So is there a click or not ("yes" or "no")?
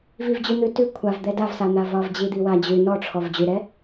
no